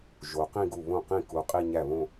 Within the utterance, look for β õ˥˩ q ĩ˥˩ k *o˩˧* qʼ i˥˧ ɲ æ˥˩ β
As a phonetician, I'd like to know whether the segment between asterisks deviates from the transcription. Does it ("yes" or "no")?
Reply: yes